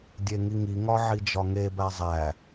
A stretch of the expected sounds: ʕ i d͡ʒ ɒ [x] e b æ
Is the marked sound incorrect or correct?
incorrect